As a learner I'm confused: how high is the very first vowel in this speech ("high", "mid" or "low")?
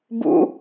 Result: high